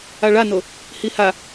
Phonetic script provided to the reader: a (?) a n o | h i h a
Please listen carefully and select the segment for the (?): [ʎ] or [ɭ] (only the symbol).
ɭ